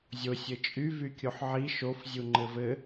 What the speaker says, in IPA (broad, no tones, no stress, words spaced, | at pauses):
zʲo sʲɘt͡ʃʼy vykʲoħʕi ʃofzʲu ŋ͡ǃɘvɘ